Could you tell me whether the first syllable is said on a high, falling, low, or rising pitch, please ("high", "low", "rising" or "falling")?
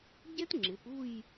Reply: high